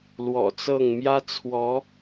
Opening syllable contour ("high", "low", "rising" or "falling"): low